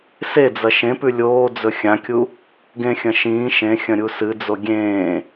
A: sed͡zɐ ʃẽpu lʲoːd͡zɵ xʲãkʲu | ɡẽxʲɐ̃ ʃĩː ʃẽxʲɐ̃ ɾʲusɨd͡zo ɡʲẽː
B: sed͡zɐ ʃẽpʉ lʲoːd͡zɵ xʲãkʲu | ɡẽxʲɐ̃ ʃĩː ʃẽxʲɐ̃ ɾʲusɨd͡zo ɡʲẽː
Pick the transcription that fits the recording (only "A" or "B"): B